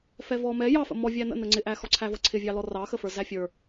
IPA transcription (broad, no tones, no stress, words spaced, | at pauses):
fɛvɔ mɛ jɑfə̰ mɔvʲæ nə̰ nəŋ͡ǀɪʔæxɔ ǀʰævʌǀʰɪvʲɑ lɔrɑxəfə˞ zæfʲə˞